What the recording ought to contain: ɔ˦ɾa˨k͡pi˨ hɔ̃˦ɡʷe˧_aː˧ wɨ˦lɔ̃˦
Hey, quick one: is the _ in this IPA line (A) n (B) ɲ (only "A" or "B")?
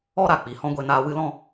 A